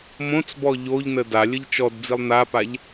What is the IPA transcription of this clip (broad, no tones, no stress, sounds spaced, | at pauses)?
m õ t͡s b ɔ ʎ o ʎ n ə d a lʲ ə ʎ t͡ʃ ɔ d d͡z i lˠ n a p a ʎ